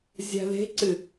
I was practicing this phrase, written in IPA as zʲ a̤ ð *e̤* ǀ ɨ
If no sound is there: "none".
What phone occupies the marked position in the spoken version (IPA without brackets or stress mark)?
e̤